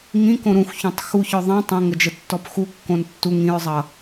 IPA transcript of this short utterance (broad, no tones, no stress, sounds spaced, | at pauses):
ŋ ĩ k õ ɾ ũ x ç ũ tˤ x u ç ɔ ðˤ ɛ̃ tˤ ə̃ ŋ ə d͡ʒ ə tː ɔ p x u kː õ n tː u ŋ ĩ ɹ zˤ ʌ